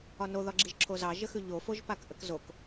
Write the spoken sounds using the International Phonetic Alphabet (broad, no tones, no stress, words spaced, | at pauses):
ɒnoðɒɡ͡ǁiʒ ǁʰozɑ ʒəxʉʎofoʒ pakʔəkzok